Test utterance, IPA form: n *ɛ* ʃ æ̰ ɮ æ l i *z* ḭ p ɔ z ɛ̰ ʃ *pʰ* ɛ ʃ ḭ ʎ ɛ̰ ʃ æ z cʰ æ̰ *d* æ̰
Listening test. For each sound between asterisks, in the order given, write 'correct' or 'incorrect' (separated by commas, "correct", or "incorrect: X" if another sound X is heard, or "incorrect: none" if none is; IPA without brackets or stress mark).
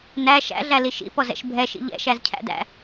incorrect: æ, incorrect: ʃ, incorrect: bʱ, correct